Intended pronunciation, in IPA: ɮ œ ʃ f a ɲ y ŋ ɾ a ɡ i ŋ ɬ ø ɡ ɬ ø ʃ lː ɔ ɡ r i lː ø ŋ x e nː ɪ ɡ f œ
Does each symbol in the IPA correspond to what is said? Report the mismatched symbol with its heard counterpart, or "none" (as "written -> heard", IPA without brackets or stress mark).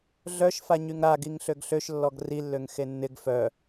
none